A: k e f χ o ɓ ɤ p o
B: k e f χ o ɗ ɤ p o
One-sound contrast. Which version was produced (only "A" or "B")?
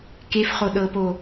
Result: B